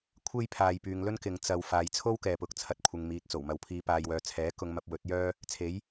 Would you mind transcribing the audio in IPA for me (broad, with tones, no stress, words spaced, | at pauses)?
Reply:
kʷʰe˥jpʰaː˨j pyː˨ŋlɵ˥n kɪ˨˧ŋ t͡sɐ˨w faː˨jt͡sʰo˥w kɛː˨pʊ˨k̚ t͡sʰɐ˧t̚kʷʰɪ˨ŋmiː˨t̚ t͡so˨˩wmɐ˨˧wpʰiː˨˧paː˨j wœː˨t͡sʰɛː˨˥ kʊ˧ŋmɐ˧p̚ wɵ˨˥t̚jœː˥ | t͡sʰe˨˥j